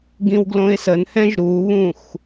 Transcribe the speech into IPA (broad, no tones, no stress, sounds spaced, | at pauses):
ɡ ĩ w ɡ l õ ɪ̯ s ə n h ɛ̃ ʒ ɾ u β ũ x